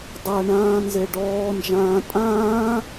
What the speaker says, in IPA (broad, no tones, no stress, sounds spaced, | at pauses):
dˤ a ɳ ãː n z e ɖ ɔː n d͡ʒ ãː tʼ ãː